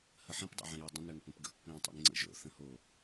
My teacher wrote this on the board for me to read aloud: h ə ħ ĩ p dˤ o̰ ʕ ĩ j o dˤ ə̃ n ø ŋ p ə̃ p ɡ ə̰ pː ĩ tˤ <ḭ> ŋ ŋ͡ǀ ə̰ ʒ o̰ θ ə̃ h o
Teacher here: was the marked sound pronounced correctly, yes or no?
yes